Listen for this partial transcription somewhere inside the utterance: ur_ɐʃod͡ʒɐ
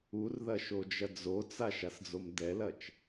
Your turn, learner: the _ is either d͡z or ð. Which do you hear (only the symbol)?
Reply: ð